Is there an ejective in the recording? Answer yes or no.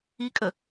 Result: yes